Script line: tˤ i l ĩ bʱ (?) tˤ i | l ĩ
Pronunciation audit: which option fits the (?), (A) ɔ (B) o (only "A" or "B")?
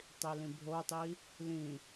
B